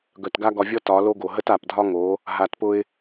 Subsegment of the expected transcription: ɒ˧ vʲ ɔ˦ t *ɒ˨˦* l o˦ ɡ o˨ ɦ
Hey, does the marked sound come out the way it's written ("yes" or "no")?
yes